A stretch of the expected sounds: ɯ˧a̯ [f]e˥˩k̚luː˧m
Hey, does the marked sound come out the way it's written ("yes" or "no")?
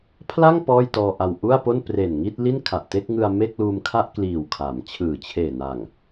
no